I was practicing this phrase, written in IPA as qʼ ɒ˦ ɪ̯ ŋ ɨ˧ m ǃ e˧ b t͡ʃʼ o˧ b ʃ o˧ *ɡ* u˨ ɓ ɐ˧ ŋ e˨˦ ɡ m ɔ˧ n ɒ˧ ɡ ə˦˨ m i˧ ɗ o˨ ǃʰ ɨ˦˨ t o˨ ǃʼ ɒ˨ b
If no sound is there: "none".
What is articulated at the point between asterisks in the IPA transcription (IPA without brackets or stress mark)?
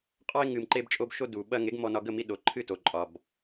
d